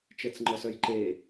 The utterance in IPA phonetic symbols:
t͡ʃɛt͡sŋ͡ǃɔsœjǃe

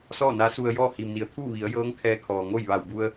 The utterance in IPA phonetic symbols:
sɔː˥˨na˧˥su˧ə̯ jɔː˥˨hi˩mni˩ə̯ t̪ʰuː˥˨ʋi˩˧ə̯jɤː˧˥ŋ kʰɛː˧kʰɔː˩ŋo˥˨jʋa˧˩w bu˧ə̯

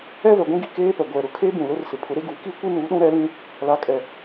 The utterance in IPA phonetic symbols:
ɛ˦vɛ˨ɡʷĩ˦ɡi˨ keː˦pɛ˨ɡʷɛ˨ ɾʊ˨kʰe˦ bũ˨lʊ˦rsɪ˨ pʰʊ˨˦ɾe˦ɡu˨˦ ki˦kʷi˦nuː˨˦ ɗũ˦ɾɛ˨˦lĩ˦ | la˨kʼɛ˨

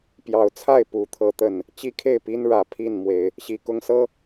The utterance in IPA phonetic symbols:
pjɑ˨˦ʊ̯t͡sʰa˥˨ɪ̯ pu˨˩t̪ʰɤ˨˦ t̪ə˨˩n | t͡ɕi˦kʰe˥˨ɪ̯pi˦n ɻä˨˩ pʰi˥˨nmwe˨˦ɪ̯ | ɕi˨˩kʊ˦ŋsɤ˦

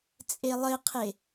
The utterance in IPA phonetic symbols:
t͡sʼelˠɘqʰe

